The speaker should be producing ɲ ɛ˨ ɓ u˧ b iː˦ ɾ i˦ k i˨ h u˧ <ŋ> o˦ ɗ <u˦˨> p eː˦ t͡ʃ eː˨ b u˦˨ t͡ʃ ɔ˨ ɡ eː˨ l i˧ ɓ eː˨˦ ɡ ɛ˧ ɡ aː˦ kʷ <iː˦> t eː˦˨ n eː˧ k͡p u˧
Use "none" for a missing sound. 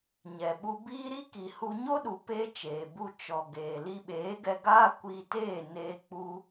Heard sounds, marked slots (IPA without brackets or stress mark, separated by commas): ɲ, u˨, iː˧